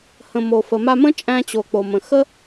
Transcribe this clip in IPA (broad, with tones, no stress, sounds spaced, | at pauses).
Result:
h ə̃˩ m o˩ f ə˩ m a˧ m ə̃˥ t͡ʃʼ æ̃˧ t͡ɕ o˩ k͡p o˩ m ə̃˩ x ə˥